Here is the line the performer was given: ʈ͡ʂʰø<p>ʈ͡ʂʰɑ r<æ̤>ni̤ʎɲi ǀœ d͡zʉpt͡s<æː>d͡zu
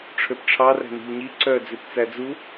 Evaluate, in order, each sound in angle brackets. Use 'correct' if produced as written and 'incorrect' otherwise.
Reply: correct, correct, incorrect: æ

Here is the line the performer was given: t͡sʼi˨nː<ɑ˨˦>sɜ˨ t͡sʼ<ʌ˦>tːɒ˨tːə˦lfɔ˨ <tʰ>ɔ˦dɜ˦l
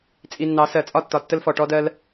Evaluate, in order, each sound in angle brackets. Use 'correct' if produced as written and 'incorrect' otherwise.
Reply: correct, incorrect: ɒ˦, incorrect: ʈ

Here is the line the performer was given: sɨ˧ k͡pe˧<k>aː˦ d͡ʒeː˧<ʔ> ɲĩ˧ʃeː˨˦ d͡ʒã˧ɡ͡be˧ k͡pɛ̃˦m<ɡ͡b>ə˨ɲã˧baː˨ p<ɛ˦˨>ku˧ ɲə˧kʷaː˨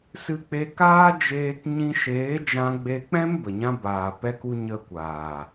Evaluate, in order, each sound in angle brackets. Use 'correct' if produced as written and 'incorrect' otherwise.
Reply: correct, incorrect: k, incorrect: b, incorrect: ɛ˧

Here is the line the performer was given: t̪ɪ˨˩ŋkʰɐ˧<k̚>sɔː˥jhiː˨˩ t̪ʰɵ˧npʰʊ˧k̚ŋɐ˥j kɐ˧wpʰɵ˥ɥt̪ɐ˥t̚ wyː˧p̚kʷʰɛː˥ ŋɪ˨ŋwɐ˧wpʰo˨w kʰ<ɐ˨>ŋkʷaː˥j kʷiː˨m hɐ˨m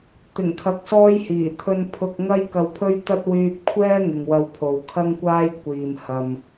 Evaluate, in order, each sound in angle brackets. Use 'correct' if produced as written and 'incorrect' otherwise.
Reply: correct, incorrect: ɐ˥

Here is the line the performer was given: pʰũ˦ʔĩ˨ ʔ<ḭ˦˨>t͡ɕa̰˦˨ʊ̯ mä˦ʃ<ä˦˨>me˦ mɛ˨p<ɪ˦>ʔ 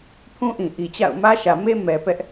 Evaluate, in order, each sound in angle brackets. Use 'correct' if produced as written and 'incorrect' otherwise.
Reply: incorrect: i˨, incorrect: ä˨, incorrect: ɛ˦

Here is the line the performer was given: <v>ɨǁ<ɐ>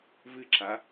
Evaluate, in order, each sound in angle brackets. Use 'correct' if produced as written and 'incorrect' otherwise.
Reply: correct, incorrect: a

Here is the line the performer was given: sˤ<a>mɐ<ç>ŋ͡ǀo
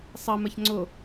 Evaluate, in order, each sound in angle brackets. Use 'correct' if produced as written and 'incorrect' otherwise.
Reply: incorrect: ɐ, correct

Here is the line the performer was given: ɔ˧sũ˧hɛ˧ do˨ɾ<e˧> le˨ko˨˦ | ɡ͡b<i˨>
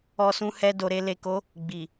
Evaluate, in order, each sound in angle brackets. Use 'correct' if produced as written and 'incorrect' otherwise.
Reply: correct, correct

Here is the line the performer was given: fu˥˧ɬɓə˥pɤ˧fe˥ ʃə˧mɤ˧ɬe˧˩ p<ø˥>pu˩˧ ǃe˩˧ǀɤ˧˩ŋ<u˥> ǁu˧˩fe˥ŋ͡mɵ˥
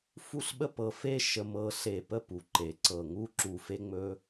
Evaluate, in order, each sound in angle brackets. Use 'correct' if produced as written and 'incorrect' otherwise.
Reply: incorrect: ə˥, correct

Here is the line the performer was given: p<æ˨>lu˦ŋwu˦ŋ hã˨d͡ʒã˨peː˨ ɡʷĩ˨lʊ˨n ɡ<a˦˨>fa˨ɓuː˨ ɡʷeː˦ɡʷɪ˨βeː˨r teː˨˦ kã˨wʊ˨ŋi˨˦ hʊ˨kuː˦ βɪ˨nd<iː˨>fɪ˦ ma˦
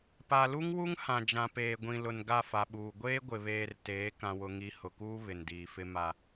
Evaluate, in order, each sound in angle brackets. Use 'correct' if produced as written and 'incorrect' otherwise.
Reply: incorrect: a˨, correct, correct

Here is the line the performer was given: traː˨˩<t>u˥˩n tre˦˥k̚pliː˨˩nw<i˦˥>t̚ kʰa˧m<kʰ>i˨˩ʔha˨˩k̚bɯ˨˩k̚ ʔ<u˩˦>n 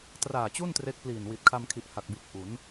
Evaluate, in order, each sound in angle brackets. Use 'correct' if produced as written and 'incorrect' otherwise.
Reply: incorrect: t͡ɕ, incorrect: i˨˩, correct, correct

